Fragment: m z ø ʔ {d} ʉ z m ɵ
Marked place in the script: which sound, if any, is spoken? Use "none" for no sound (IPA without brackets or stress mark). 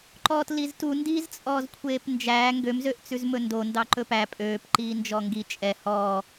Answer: t͡s